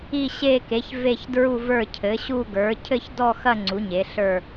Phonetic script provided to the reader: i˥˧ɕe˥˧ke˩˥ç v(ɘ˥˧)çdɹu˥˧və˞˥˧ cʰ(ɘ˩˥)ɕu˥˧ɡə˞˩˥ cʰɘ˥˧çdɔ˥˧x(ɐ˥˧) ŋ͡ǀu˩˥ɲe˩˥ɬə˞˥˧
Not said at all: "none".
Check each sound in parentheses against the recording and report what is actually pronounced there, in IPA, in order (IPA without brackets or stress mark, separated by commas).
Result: e˥˧, ɘ˩˥, ɐ˥˧